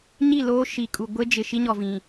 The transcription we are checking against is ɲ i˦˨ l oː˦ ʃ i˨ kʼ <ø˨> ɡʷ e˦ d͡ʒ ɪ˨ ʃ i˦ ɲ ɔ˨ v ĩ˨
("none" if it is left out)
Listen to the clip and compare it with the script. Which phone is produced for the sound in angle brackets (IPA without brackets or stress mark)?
u˨